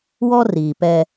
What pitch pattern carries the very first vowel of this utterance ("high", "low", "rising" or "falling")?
high